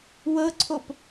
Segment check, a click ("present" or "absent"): present